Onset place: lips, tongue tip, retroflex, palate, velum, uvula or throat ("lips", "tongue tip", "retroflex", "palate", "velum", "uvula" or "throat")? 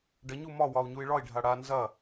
retroflex